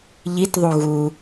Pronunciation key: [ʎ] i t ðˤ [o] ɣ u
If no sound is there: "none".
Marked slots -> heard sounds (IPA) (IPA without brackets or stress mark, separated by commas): ʎ, u